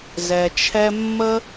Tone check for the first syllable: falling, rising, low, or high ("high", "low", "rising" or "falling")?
low